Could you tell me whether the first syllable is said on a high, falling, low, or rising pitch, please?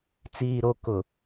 low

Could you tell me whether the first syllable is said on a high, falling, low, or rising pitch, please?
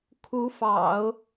rising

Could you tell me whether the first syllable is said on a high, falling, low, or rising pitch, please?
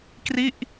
falling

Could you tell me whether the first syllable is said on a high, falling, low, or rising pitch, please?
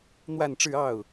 falling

